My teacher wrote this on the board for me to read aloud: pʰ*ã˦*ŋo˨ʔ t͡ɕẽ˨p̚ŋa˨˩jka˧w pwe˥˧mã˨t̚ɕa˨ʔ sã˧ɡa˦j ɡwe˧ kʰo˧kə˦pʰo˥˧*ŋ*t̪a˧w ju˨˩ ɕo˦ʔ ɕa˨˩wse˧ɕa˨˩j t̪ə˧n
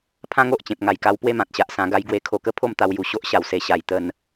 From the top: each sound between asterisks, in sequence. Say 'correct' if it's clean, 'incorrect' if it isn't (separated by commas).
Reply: correct, incorrect